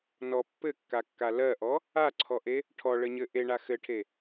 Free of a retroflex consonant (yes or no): no